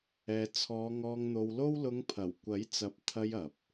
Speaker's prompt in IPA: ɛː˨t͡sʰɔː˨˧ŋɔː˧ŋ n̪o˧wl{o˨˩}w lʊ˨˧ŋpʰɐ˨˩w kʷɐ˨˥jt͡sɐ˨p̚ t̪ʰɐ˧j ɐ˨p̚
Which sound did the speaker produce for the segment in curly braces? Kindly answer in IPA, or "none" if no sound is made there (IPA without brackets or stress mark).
o˥